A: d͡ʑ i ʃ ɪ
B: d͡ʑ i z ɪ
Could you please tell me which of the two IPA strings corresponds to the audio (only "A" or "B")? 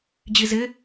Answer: B